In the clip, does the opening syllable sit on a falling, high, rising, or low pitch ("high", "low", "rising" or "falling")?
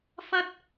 high